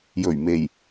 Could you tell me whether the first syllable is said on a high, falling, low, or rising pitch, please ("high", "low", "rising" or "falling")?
low